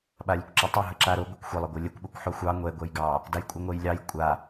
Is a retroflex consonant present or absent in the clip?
absent